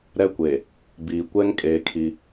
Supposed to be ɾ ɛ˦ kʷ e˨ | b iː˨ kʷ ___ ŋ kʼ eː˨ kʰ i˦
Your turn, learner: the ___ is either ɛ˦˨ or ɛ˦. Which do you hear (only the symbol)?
ɛ˦